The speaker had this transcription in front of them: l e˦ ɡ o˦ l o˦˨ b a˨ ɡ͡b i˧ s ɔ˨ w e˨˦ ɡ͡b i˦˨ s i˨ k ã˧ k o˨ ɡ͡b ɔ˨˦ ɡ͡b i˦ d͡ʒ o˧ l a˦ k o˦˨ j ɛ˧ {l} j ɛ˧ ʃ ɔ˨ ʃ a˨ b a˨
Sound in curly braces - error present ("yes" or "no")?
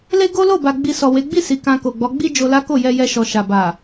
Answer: yes